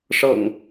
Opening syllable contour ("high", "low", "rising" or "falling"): low